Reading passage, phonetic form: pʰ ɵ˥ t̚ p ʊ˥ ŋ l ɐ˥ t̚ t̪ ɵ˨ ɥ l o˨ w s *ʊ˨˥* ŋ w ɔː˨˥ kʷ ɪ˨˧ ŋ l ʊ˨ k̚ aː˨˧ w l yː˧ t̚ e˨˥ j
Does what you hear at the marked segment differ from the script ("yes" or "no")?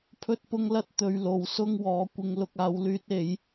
yes